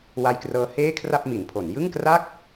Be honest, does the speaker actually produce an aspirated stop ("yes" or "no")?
yes